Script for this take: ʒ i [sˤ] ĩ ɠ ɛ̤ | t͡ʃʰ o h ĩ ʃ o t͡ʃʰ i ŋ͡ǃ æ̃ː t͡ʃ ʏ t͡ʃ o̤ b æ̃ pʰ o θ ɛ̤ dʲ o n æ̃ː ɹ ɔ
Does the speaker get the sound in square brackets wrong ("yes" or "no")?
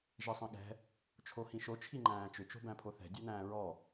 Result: no